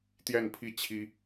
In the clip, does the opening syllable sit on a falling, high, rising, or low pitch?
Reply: falling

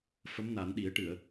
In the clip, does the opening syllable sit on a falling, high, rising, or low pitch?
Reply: rising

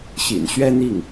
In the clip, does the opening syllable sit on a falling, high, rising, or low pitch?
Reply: low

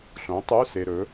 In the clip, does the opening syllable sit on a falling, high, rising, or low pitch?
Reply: rising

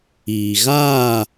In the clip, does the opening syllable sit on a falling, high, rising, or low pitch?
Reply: low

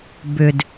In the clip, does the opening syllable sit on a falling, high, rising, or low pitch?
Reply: low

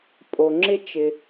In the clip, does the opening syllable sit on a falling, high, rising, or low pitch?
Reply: low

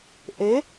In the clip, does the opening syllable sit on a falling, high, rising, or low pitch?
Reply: rising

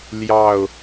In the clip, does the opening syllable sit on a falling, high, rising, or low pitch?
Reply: falling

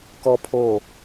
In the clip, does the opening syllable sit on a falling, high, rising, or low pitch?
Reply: high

